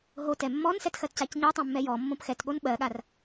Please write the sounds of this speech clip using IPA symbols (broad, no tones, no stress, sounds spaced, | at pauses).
ɦ o t ɛ mː ɔ n s ɛ t x ɜ t c a c ɲ ɜ tˤ ɛ̃ mː ɛ j ɔ mː õ p x ɛ t ɠ o n ɓ ɜ ɠ a r